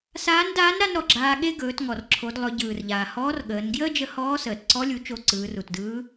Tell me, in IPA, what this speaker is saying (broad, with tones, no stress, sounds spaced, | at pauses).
s aː˧˥ n d aː˧˥ n ɾ a˥ n ɾ ɔ˩ ɡ͡ǁ aː˧ ɠ e˥ ɡ ɵː˩˧ t ŋ ɔ˩ r ǁʰ o˩˧ d lˠ ɵ˩˧ ɟ ɯː˩ r ʎ aː˩ h ɔː˧˥ r ɠ əː˩˧ n ɡ j əː˥ d͡ʒ ə˧ h ɔː˧˥ s əː˩ t ǀ ɔ˧˥ lʲ u˩˧ t͡ʃ o˧ ǀ ɯː˩˧ r u˩ t d ɯː˧˥